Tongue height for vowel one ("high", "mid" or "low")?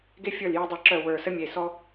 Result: mid